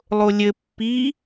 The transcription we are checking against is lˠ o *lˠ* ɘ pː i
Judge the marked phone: incorrect: lʲ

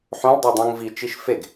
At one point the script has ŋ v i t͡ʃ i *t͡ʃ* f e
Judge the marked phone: incorrect: ʃ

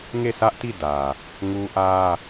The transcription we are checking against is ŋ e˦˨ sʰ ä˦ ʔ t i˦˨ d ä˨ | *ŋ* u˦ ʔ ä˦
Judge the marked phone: correct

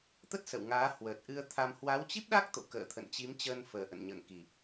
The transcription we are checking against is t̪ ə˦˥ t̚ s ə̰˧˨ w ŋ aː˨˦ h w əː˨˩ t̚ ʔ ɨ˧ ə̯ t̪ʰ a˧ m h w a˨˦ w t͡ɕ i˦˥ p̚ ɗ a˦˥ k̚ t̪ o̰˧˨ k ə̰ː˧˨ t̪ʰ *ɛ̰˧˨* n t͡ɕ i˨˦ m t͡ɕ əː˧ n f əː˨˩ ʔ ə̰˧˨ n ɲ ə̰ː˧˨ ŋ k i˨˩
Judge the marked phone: incorrect: ə̰˧˨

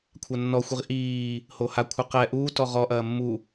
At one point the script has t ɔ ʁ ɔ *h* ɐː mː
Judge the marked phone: incorrect: ʔ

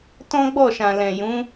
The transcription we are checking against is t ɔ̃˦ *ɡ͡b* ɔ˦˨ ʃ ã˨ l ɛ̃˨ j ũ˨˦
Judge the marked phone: correct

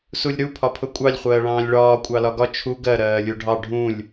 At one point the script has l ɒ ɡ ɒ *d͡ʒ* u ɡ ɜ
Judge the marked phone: incorrect: t͡ʃʰ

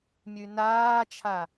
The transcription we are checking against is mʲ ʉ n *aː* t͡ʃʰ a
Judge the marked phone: correct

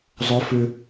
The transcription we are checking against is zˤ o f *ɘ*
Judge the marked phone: incorrect: ʉ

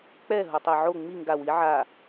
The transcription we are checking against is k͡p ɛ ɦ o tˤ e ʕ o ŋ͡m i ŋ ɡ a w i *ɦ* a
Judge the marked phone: incorrect: ʕ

